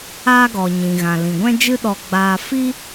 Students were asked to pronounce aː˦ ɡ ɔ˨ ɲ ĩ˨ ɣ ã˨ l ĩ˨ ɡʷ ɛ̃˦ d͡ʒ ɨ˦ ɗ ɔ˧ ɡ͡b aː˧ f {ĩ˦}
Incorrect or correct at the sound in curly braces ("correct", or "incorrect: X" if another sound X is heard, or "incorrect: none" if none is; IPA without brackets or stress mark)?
incorrect: i˦